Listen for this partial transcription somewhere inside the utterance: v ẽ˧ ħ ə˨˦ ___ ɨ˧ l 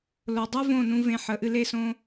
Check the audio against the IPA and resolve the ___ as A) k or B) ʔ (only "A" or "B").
B